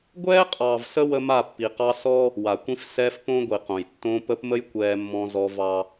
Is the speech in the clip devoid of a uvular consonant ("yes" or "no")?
no